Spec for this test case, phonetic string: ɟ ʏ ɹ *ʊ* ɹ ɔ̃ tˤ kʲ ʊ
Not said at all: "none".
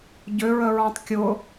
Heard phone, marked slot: ə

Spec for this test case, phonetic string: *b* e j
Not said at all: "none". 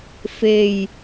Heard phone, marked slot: f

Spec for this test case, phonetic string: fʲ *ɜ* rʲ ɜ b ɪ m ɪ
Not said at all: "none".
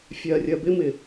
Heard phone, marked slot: ɜ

